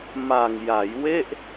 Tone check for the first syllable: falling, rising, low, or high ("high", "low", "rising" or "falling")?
low